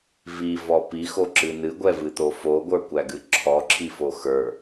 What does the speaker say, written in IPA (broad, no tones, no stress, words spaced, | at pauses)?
vivɔ pixoǁɨ nɨɡʷɛvɨt̪o foɡʷə˞kʷæɡɨ ǁʰɔǁʰifo xə˞